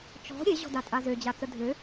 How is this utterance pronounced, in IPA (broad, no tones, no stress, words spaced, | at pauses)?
t͡ʃɔ̤ ɾʲeʑɔ̤datʼa zød͡ʑat͡sə dʱø